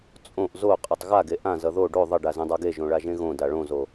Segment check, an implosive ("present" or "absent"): absent